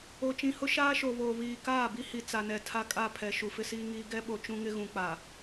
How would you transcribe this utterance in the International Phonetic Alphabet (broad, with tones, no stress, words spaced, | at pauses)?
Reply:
o˨t͡ʃĩ˨hʊ˦ ʃaː˦ʃo˨βoː˨ βiː˨kaː˦˨bi˦ hi˨t͡sa˨nɛ˨ tʰa˦kʼa˦˨pʰɛ˨ ʃu˨fɪ˦siː˦ŋiː˦ ɡɛ˦ɓo˨ t͡ʃũ˦ŋɪ˦ɣũ˨ k͡pa˨